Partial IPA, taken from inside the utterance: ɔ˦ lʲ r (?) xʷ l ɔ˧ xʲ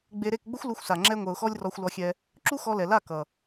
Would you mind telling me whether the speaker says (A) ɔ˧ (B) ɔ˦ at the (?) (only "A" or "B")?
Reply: A